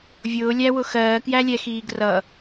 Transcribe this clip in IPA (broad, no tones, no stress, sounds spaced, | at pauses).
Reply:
vʲ ʊː lʲ æ w ʊ x ɜː k j æ lʲ ɛ x iː ɡ r ʌ